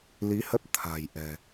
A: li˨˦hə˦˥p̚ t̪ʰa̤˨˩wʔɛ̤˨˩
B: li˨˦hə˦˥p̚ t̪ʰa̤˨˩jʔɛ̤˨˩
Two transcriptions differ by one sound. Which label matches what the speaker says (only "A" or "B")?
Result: B